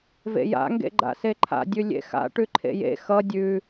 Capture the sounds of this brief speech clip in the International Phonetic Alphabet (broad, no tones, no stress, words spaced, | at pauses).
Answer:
vḛja̰ ŋɡḛɡ͡ǃa̰seǃʰa̰ dʲʉlʲḛxa̰ ʈʉǃʰḛjḛ xʌ dʲʉ